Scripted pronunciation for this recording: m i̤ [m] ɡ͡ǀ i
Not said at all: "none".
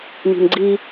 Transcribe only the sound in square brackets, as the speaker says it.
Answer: m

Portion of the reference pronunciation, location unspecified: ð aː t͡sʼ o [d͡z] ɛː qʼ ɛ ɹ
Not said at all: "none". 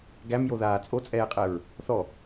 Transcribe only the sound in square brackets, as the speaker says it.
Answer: t͡sʼ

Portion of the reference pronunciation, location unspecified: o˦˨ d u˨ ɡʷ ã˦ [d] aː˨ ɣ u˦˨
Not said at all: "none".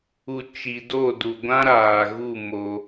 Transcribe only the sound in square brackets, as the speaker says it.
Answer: ɾ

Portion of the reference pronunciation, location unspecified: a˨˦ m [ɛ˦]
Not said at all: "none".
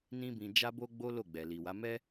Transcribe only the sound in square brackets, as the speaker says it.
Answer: ɛ˦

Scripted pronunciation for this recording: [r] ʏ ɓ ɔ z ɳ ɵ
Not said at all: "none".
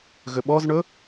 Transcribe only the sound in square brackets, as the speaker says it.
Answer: ɣ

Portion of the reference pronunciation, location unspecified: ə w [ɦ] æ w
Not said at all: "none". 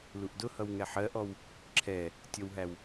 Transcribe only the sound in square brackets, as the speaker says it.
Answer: ɦ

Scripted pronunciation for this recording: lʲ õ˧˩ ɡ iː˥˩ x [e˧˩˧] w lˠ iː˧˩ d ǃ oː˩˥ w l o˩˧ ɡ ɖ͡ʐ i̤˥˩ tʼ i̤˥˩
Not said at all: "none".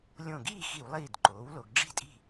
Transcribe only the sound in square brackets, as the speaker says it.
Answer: i˧˩˧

